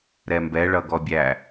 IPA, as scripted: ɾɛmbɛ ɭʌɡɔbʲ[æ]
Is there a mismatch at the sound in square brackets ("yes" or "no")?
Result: no